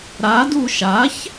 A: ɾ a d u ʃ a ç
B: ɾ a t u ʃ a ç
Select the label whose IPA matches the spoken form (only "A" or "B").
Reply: A